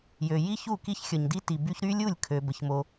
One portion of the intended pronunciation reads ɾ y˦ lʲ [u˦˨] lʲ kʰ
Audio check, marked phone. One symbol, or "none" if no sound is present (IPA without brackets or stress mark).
u˦˨